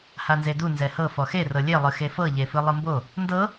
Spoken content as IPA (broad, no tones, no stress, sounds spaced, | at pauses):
h a n z e d u n z ɛ h ɤ f ɔ x e r ɤ lʲ e lˠ ɯ x e f ɤ ʎ e f ɯ lˠ ɯ m b o | n d ɤ